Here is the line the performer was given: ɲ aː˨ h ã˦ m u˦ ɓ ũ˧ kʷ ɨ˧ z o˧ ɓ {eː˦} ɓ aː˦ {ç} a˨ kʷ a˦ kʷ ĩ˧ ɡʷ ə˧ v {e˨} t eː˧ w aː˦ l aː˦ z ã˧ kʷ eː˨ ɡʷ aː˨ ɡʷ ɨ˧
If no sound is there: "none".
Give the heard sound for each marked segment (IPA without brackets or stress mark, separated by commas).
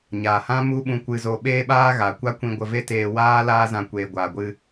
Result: eː˦, ɣ, e˦